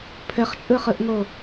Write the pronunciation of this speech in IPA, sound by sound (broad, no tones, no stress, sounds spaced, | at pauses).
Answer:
pʰ ɘ χ t͡ʃʼ ɯ χ ɯ ʔ ŋ o